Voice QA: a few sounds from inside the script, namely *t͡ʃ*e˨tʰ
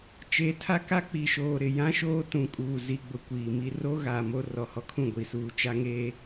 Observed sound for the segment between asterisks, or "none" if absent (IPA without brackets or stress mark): t͡ʃ